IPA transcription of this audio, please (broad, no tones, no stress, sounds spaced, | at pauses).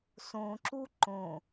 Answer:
s õ ǁ u ǃ õ